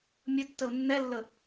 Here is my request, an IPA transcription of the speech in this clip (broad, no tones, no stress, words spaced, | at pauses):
mʲətːəʊ̯ nːɛlːə